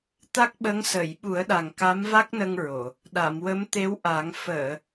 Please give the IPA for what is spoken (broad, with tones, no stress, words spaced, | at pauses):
t̪a˦˥k̚ɓə˧˥ŋ səː˨˩˨jɓu˨˩˦ə̯ɗa˨˩ŋ ka˧˥mva˦˥k̚nə˧ŋ ɹo˨˩˨ | ɗa˨˩˨mwə˧˥mt̪e˧˥wʔa˨˩˦ŋ fəː˨˩˨